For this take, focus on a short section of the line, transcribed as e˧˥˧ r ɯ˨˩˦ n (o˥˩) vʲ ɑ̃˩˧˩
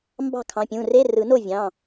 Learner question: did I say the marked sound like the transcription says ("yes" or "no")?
yes